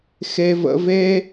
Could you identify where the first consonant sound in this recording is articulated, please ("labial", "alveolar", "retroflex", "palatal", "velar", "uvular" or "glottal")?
velar